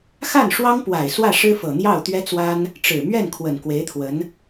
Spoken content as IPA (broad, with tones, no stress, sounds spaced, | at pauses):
x a˥˩ n ʂ w ɑ˥ ŋ p w a˨˩ ɪ̯ s w ä˥˩ ʂ ɻ̩˥ f ɤ˨˩ n̪ j ɑ˥˩ ʊ̯ t̪ ɥ ɛ˥ t͡s w a˥ n | ʈ͡ʂ ɻ̩˨˩ m ɥ ɛ˥˩ n kʰ w ə˨˩ n k w e˧˥ ɪ̯ t̪ʰ w ə˧˥ n